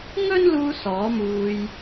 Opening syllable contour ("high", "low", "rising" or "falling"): high